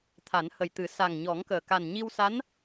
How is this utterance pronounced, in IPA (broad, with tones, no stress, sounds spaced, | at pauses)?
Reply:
t̪ʰ a˨˩˦ n h ə˨˩ j t̪ ɨ˨˩˦ s a˨˩ ŋ ɲ ɔ˨˩˦ ŋ k əː˨˩ k a˨˩ n ɲ i˧ w s a˧˥ n